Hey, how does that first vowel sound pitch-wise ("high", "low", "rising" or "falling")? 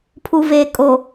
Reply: low